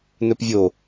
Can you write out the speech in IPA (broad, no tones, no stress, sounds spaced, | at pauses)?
n ɵ p vʲ o